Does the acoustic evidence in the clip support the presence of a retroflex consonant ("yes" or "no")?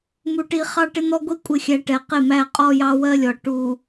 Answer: yes